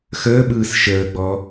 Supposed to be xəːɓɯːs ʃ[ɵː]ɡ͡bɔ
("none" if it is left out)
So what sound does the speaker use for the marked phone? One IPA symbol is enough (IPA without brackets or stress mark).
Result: əː